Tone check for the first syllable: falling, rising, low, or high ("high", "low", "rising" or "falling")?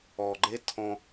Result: low